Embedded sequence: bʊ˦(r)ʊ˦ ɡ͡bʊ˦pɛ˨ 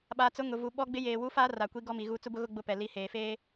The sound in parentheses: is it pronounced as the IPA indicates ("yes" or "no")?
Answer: no